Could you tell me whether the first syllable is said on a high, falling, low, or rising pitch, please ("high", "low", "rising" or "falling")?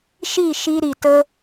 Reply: falling